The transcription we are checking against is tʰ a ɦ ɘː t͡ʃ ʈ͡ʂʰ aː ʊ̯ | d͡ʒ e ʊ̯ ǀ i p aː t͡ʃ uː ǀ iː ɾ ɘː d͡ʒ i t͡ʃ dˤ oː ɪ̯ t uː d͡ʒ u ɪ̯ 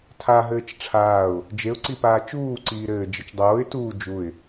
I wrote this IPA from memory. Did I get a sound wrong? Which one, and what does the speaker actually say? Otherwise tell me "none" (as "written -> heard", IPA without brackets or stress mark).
none